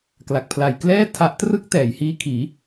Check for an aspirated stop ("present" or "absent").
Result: present